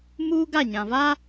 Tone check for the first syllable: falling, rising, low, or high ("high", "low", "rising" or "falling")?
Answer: high